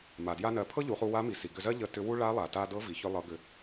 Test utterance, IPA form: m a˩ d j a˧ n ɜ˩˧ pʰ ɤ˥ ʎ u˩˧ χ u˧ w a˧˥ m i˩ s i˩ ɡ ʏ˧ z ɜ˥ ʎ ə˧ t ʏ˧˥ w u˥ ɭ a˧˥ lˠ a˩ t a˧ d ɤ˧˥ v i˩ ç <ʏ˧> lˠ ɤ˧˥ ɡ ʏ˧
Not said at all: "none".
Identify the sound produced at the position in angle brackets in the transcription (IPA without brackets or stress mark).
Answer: ʏ˥